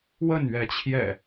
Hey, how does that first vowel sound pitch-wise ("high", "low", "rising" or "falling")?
falling